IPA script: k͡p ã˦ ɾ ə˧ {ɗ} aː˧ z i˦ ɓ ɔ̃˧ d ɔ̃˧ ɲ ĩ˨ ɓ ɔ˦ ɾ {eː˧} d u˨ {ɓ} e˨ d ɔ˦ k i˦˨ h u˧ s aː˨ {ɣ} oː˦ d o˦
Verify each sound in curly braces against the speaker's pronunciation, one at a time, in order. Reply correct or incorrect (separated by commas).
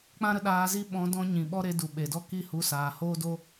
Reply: correct, incorrect, correct, incorrect